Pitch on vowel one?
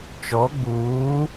rising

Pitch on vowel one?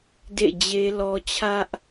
falling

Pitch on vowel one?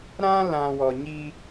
high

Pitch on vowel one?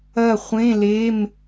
falling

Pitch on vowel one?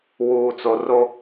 low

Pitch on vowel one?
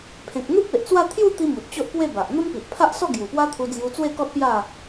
low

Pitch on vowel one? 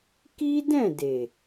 high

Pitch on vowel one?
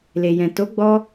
low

